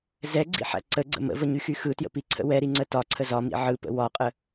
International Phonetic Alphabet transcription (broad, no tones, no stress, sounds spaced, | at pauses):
z ɛ ɡ͡ǀ ḭ ħ æ̰ ǀ ə ɡ͡ǀ ə̰ m ə̰ v ə ɲ y x y x ɯ t j ə̰ p i ǀʰ ə̰ w ɛ ɾ i ŋ͡ǀ ə t ɒ ǀʰ ə z ɒ m ḭ ʕ ɯ p ə̰ w ɒ qʼ ə